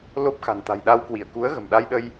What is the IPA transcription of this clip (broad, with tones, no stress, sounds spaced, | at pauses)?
l o˦˥ p̚ x a̤˨˩ n t̪ a̤˨˩ j ɗ a˧ w k w i˧˩ ə̯ k u˨˦ ə̯ ɣ ə̤˨˩ m ɗ a˧ j ɗ ə˧ j